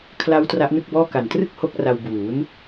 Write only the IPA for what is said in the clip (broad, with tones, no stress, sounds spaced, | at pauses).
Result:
kʰ l a˦˥ w t r a˦˥ ʔ n ɯ˥˩ k̚ b ɔː˥˩ k a˨˩ n t r ɯ˥˩ k̚ h o˥˩ k̚ r a˧ w b uː˩˦ n